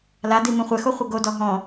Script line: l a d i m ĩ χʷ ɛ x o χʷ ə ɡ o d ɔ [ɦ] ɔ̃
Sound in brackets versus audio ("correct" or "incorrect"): correct